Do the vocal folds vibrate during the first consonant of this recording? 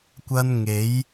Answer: no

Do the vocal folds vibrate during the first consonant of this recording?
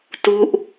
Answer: no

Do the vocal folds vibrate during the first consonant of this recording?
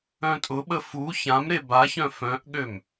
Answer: no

